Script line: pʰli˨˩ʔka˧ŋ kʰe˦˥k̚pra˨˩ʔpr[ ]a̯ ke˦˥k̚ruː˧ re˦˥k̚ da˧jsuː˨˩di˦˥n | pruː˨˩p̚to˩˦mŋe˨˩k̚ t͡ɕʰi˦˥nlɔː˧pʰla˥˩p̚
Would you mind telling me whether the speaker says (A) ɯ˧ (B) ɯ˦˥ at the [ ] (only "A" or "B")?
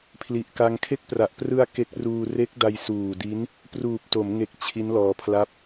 A